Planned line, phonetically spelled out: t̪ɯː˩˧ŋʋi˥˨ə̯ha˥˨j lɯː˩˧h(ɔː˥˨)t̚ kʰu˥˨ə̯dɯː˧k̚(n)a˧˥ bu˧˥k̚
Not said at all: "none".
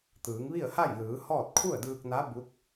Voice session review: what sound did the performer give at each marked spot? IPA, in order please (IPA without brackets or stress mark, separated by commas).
ɔː˥˨, n